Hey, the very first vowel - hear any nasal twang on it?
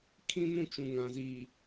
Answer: yes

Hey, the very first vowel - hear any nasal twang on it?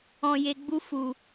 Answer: yes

